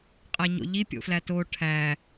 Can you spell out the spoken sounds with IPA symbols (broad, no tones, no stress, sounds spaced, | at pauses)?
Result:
qʼ æ ɲ o̰ ʎ i pʲ o̰ f l æ t o ʈʰ æ